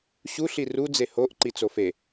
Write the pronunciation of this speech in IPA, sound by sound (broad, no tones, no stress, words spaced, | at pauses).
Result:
ɕu ɬiru d͡zehoʔ ǃit͡sofe